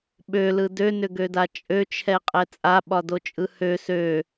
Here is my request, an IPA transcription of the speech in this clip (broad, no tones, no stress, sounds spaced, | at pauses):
ɓ ø l ɯ d ø n ʏ ɡ ø d a t͡ʃʼ ø t͡ʃʰ ɛ qʼ ɛ t͡sʼ a ɓ ɒ d o t͡ʃʼ ɯ h ø s ø